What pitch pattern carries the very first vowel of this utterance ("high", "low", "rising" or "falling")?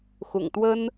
low